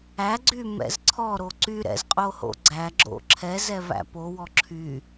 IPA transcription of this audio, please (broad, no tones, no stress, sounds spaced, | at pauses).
æ ɡ͡ǀ y m ɛ̰ z ǀʰ ɔ ɾ o ǀ y ɾ ɛ̰ z qʼ o h o̰ ɡ͡ǀ æ ɡ͡ǁ o̰ ǁʰ ɛ z ɛ v æ̰ p o w ɔ ǁʰ y